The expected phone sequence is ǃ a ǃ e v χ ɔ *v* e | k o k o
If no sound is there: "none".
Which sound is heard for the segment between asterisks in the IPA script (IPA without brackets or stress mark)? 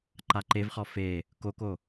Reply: f